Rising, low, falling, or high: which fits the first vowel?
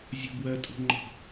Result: low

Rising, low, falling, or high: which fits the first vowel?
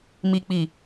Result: low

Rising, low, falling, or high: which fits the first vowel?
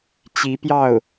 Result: rising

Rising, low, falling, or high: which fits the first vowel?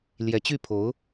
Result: rising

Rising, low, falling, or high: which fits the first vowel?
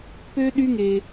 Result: high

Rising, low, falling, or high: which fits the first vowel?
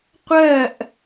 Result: falling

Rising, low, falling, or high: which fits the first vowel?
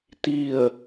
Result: falling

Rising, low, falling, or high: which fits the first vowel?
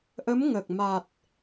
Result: rising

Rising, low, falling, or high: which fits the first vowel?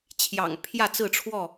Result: low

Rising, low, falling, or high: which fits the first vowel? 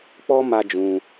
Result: high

